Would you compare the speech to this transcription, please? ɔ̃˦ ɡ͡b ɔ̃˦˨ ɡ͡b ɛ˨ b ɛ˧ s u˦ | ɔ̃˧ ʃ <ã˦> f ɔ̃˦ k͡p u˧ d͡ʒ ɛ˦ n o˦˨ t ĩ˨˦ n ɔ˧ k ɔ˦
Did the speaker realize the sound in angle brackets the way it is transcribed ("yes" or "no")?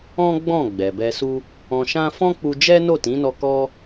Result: yes